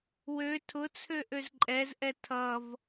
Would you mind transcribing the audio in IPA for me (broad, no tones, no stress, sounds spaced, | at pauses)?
w ø tʰ ʊ t͡sʰ ø ʔ ø z ǃʼ ɛ z ʔ ɛ tʰ ʌ v